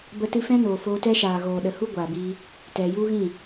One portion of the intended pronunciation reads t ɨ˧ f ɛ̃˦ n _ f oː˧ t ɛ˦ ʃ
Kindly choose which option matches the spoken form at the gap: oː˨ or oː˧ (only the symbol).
oː˨